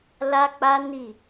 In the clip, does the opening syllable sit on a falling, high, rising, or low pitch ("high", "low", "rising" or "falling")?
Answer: high